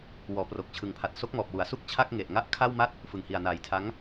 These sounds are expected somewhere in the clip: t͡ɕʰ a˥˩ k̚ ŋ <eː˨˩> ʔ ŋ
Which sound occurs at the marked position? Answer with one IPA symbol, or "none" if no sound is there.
e˨˩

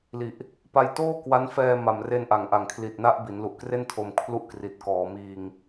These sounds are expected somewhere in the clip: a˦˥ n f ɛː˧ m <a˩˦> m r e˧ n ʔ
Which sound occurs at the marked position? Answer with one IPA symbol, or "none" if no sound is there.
a˨˩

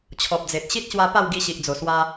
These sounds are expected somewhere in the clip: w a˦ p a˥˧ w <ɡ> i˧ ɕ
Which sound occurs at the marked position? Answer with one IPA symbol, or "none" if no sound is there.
ɡ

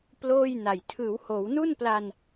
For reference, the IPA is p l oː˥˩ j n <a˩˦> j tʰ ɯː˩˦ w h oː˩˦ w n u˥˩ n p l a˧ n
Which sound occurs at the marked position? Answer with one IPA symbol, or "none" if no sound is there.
a˨˩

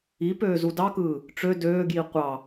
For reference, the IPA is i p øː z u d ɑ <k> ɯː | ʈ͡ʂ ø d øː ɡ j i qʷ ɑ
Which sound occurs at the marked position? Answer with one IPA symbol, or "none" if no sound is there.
k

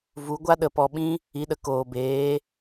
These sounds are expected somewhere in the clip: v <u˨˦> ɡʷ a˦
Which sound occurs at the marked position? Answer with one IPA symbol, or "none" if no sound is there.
u˨˦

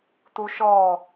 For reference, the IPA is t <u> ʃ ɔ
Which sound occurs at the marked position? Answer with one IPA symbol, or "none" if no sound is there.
u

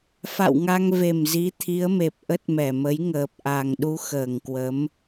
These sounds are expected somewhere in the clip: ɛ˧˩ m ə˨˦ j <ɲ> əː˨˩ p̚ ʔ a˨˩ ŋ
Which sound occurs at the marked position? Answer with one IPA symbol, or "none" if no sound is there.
ŋ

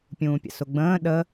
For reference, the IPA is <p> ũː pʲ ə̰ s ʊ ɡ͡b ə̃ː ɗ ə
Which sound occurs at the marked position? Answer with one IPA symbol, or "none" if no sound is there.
pʲ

